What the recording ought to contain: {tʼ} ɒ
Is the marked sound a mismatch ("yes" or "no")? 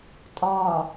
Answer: no